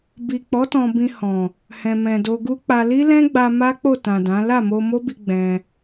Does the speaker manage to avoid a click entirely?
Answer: yes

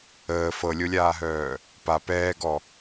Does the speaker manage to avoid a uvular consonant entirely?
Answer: yes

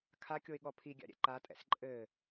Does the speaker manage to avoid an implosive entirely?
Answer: no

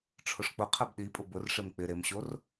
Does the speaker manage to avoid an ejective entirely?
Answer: no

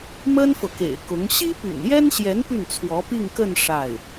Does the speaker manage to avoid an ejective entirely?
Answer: yes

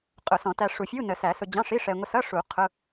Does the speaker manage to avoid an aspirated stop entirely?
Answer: no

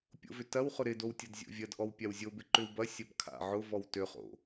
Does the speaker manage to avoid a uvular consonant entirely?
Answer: no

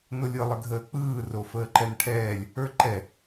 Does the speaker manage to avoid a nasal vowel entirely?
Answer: yes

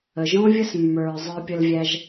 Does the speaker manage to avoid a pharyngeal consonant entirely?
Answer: yes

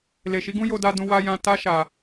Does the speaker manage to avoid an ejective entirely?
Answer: yes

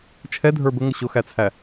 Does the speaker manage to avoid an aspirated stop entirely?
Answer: no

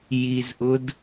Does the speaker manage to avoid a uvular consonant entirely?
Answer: yes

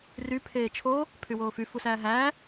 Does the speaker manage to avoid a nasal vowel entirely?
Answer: yes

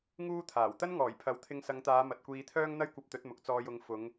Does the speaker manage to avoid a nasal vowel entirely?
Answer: yes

